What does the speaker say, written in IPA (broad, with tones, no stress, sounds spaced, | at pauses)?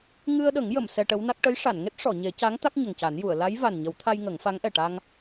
ŋ ɨ˧ ə̯ ɗ ə˨˩˦ ŋ j ə˨˩˨ m s ɛ˧ ʈ ə˧˥ w n a˦˥ k̚ ʈ ə˧˥ j ʂ a˨˩˨ n ŋ e˦˥ t̚ ʂ ɔ˨˩˨ ɲ e˨˩˦ c a˧˥ ŋ t̪ a˦˥ k̚ ɲ ə˨˩ ŋ c a˨˩˦ n j u˨˩˨ ə̯ l a˧˥ j v a˨˩ n ɲ ə˨˩˦ w t̪ʰ a˧ j ŋ ə˨˩˦ ŋ f a˧˥ ŋ ʔ ɛ˨˩ ʈ a˧ ŋ